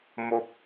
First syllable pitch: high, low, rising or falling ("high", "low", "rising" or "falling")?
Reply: high